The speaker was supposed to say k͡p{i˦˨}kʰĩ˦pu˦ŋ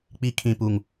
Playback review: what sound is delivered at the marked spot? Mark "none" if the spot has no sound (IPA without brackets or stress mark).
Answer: i˦